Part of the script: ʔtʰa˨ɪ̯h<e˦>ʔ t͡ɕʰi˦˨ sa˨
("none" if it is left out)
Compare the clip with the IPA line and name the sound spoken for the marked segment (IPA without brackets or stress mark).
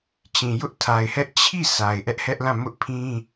ɛ˦